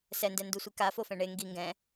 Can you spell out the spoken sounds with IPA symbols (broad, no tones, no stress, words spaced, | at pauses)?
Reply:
sɛndɛ ndusʷika fofɛ̃ɳe ŋɡi ŋɡɛ̃